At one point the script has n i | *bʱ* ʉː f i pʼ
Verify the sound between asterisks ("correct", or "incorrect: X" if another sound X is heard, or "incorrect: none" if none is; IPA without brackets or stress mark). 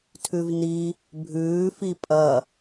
correct